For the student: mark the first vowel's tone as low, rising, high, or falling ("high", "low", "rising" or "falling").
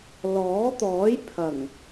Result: rising